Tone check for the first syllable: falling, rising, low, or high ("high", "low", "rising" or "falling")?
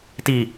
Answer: low